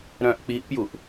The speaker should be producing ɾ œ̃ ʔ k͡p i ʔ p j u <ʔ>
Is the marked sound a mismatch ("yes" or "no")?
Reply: no